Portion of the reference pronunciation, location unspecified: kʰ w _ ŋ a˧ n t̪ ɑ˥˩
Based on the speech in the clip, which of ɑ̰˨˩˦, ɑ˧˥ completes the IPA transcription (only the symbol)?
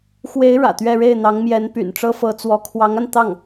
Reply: ɑ˧˥